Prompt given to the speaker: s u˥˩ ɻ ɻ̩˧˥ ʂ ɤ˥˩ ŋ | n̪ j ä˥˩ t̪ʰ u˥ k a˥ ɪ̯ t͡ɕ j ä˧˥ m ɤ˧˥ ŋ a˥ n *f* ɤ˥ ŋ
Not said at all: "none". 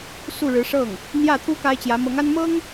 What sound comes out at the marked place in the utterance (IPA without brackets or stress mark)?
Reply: m